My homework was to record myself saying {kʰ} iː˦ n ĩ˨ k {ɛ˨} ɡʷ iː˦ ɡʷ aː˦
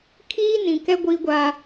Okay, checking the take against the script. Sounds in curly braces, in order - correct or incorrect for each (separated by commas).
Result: correct, incorrect